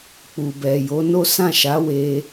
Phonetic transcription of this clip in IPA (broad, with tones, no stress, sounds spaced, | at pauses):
k͡p u˨ b ɛ˨ j o˨˦ n o˦ s ã˦˨ ʃ a˨˦ w e˧